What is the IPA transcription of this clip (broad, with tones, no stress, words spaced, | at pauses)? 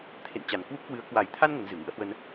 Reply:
t̪ʰḛ˧˨nt͡ɕa˨˩n kwu˦˥p̚kwɨ˨˦ə̯ kwa˨˩jt̪ʰa˧n ŋə˨˦nzɨ˨˩ ŋɨ̰˧˥ə̯hwə˧n